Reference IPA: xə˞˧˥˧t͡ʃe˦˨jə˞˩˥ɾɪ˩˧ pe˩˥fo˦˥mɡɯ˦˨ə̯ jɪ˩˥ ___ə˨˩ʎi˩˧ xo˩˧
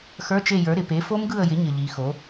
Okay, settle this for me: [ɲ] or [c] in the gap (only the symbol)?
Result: ɲ